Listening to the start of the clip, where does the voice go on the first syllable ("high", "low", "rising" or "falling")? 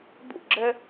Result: falling